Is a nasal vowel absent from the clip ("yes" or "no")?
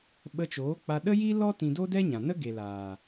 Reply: no